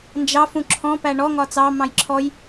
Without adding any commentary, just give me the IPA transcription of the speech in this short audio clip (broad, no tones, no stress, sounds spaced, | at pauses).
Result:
n d͡ʒ ɑ f ũ ǁʰ ɔ̃ p æ ɳ ɔ ŋ ɒ t͡s ɑ m ɑ̃ j ǁʰ ɔ j